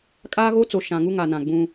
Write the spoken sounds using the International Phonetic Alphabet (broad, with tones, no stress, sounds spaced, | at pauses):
kʼ aː˦ ɣ o˦ t͡s o˨ ʃ ã˨ ŋ u˦ ŋ a˨ n ã˨ ɡ͡b ũ˦